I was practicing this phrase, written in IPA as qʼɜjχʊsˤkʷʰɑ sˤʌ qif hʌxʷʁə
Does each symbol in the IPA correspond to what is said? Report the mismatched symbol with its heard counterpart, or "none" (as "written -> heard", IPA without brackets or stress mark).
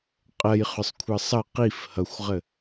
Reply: none